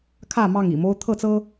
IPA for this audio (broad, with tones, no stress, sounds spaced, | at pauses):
kʰ ä˥˨ m ɑ˥˨ ŋ ḭ˨˩ m o˦ ʊ̯ t̪ʰ ɤ˥˨ t͡s ɤ˦